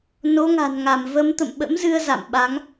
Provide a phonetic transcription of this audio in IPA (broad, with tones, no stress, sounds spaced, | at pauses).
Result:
n o˨˦ ŋ a̤˨˩ n ŋ a˧˩ m v ə˨˦ m t̪ ə̰˧˨ m ɓ ə̰˧˥ m z ɨ˧ ə̯ z a̰˧˨ m ɓ a˨˦ ŋ